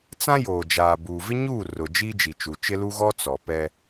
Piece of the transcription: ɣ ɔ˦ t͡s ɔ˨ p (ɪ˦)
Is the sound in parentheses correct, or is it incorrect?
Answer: incorrect